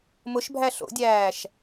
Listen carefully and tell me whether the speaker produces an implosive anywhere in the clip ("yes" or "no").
no